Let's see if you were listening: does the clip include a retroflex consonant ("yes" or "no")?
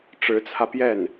yes